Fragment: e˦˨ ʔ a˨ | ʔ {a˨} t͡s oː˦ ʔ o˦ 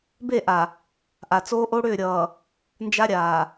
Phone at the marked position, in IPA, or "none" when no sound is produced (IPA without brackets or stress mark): a˨